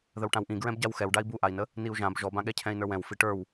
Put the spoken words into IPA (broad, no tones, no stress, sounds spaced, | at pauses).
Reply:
ð ə w ʈ ã w ʔ ĩ ɡ ɹ ɛ̃ b ɟ a w x ɛ w ɖ a i̯ b u ʔ a i̯ n ə | n i u̯ ʒ ã b ʒ ɔ b ã ɠ ɛ cʰ ɛ̃ i̯ n ə˞ w ɛ̃ w f i ʈ ə˞ w